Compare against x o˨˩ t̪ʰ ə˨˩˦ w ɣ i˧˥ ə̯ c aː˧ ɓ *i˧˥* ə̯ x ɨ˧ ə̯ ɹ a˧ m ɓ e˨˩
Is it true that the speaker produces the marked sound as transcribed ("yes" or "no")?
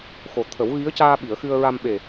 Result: no